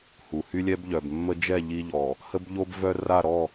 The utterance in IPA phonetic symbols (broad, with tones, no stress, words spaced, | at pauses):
hu˨hy˦lʲɛ˦bʎœ˨b mːə˦ d͡ʒɛ˦˨ ʎi˦ʎɔ˨ | hə˦bʎo˦bvœ˦ ra˦˨ɾɔ˦˨